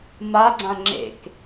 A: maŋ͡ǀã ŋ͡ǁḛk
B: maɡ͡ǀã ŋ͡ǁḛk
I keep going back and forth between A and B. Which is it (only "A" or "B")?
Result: B